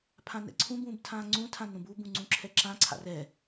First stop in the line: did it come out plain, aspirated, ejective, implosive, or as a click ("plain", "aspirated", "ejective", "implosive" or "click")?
aspirated